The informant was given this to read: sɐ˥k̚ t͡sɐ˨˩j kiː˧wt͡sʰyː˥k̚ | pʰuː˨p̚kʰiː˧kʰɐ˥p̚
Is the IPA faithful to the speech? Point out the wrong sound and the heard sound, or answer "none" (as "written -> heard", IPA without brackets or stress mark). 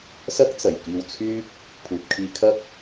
none